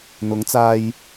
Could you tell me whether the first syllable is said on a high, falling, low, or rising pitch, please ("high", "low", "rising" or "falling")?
rising